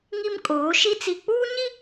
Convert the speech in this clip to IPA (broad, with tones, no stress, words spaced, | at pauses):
ŋi˦mkʼoː˨˦ʃi˦ t͡si˨k͡puː˦ɲi˦